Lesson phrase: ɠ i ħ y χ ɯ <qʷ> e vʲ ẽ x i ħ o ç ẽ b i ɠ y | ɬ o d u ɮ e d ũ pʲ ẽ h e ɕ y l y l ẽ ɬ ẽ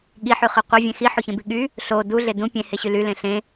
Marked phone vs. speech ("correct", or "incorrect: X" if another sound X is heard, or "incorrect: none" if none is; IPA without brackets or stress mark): correct